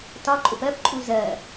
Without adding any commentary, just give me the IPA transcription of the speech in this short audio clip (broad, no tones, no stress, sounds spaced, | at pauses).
t ɒ ǃʼ ʊ p ɜ p ǃʼ u z ɜ